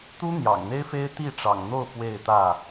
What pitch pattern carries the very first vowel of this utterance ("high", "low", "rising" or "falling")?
high